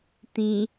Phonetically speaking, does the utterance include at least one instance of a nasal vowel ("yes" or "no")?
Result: yes